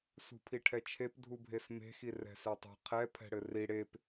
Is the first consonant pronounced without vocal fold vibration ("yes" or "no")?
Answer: yes